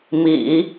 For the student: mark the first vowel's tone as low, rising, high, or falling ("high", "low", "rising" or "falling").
low